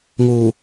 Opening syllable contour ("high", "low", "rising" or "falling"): low